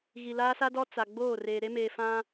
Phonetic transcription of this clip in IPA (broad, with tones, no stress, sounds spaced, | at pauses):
ɣ i˨ l aː˦ s a˦ d ɔ˦ t͡s a˨ ɡ͡b oː˦˨ r eː˨ ɾ e˦ m eː˨ f ã˦